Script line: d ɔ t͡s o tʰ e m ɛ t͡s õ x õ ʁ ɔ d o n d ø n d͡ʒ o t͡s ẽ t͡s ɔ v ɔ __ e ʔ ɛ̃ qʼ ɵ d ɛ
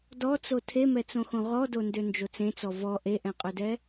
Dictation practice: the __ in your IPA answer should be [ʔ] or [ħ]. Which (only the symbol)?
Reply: ʔ